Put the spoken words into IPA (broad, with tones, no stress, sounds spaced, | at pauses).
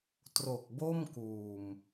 t r o˨˩ k̚ b o˥˩ m k uː˨˩ m